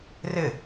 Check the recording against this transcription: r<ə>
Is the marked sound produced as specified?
no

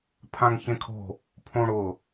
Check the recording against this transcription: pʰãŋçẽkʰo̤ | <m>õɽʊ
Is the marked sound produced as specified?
no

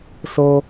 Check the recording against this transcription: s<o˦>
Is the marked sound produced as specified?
yes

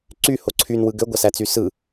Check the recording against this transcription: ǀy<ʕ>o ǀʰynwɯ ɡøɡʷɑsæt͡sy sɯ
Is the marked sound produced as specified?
no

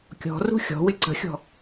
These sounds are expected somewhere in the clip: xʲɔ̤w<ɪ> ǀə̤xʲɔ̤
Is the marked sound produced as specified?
yes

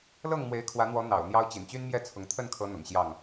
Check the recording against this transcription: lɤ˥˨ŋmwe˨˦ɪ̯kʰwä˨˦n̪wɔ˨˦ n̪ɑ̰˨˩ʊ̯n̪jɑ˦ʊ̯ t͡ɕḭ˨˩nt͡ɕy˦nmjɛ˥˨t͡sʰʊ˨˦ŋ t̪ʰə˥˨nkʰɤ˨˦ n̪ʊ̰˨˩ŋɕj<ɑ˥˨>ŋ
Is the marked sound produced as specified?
yes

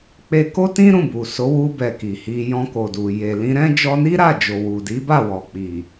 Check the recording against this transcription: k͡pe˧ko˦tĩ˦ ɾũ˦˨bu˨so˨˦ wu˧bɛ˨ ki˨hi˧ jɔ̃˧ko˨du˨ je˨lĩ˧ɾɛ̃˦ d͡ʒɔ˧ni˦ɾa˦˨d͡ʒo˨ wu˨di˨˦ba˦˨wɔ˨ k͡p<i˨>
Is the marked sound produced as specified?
yes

